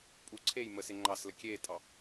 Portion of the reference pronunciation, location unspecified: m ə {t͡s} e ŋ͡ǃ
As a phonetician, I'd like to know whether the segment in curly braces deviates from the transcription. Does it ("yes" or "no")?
yes